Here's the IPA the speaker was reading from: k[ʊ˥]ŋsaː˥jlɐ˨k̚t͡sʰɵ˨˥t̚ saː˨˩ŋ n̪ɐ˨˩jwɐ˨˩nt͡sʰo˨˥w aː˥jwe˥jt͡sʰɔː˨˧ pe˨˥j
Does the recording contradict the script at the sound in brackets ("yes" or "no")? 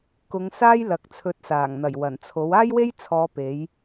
yes